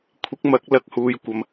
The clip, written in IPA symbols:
kʷʰ ɪ˨˥ k̚ m ɐ˨˥ k̚ l ɐ˨ k̚ h uː˨ j kʷ ɐ˧ m

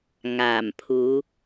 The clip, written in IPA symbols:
ŋ aː˨˩ m pʰ uː˨˧

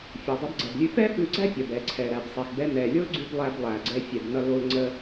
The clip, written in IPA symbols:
fʲ o˩ dˤ ə˧ b ɡ͡ǀ ɛ˩ b lʲ ʉ˧ f ɛ˥ f ʉ˧ ɡ͡ǀ æ˥ pʲ ʌ˩ b ɛ˩ ǀʰ ɛ˩ ɾ æ˩ b sˤ e˩ x b ɛ˧ n ɛ˩ lʲ o˥ l ɡ͡ǀ ʉ˧ b lˠ æ˧ b lˠ æ˩ ɡ͡ǀ ɛ˧ fʲ ɛ˩ b n ʌ˧ l o˧ l ŋ͡ǀ ə˧

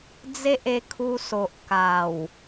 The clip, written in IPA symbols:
d͡z e˦ ʔ e˧ kʰ u˧ s o˨ ʔ k a˨˩ w

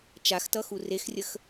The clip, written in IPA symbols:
t͡ʃ a x t ʌ x u r e x rʲ ə x

